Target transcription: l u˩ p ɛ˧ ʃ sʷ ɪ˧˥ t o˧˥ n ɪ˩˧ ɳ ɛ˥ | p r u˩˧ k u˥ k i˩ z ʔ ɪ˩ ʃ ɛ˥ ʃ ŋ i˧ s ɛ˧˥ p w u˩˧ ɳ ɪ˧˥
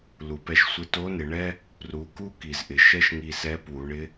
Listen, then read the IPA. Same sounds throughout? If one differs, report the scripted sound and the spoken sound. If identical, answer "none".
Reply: none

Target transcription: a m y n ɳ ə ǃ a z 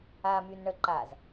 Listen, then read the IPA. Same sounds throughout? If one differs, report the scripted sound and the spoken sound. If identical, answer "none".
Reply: none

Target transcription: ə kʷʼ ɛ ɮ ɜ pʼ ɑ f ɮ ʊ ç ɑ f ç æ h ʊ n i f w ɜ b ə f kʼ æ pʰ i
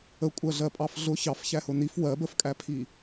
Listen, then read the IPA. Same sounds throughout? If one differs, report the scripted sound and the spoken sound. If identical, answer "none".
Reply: ɛ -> ɜ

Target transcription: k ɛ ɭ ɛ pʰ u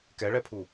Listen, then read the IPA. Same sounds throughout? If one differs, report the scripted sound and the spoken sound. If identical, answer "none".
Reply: none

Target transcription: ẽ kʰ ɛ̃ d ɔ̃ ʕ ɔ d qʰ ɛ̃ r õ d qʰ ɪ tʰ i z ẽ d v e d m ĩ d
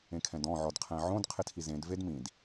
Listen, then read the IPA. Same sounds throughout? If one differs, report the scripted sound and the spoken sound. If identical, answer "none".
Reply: r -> ʕ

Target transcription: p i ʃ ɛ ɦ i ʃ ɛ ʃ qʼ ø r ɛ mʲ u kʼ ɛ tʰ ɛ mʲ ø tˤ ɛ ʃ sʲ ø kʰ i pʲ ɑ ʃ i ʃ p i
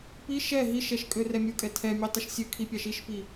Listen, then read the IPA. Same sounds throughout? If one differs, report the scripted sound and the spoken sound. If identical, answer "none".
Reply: qʼ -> kʼ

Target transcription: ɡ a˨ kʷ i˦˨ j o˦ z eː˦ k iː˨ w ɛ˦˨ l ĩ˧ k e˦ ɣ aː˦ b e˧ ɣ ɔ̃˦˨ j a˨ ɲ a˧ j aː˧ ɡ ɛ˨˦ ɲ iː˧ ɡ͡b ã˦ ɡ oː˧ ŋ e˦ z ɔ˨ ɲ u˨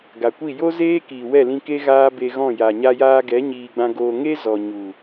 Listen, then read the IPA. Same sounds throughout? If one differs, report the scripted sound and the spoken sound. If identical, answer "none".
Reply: none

